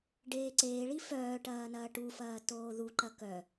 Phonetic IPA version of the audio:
ɖ eː ǀ eː ɭ i f œː ʈ ɐː n ɐː ʈ u f ɐː t oː ð u ǃ ɐ k œ

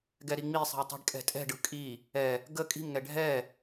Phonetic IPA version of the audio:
ɡ ɛ ɾ i ŋ͡m i sˤ i̤ w tˤ i̤ ɖ kʼ ɛ̤ tʼ ɛ̤ ɖ ɯ kʼ i | ɛ | ɡ ə kʼ i̤ m ŋ ɛ ɖʱ ɛ

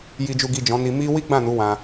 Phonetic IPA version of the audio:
j i˨ d͡ʒ u˨ ɡ i˨ d͡ʒ ɔ̃˨˦ n i˧ m i˦ w i˦ ɡ͡b ã˦˨ n u˨˦ w ã˧

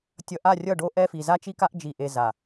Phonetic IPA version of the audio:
tʲ ʌ˨ ʔ a˦˨ rʲ ʌ˦˨ ɖ o˦ ʔ ɛ˦ f i˨ z a˦ t͡ʃ i˦ k a˦ ʔ d͡ʒ i˨ ʔ e˨ z a˨

